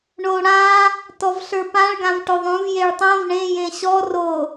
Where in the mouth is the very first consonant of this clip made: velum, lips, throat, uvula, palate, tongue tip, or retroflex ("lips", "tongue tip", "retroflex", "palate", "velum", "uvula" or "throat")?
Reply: retroflex